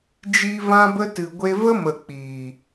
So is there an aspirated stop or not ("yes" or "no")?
no